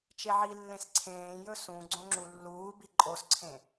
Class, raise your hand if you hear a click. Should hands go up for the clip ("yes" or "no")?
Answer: yes